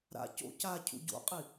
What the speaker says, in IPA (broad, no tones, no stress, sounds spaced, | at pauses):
ɾ a̰ c o̰ c a cʰ ṵ ɟ o̰ qʼ i